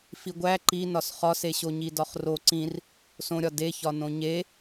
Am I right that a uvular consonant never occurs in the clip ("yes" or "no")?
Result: no